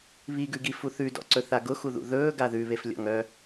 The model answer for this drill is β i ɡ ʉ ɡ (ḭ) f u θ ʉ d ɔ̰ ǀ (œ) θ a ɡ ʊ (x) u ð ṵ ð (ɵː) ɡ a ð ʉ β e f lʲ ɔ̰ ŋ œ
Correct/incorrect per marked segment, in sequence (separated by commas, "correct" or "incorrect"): incorrect, incorrect, correct, correct